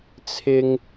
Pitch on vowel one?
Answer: high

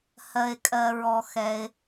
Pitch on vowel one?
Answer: low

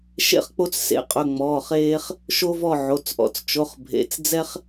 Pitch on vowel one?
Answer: falling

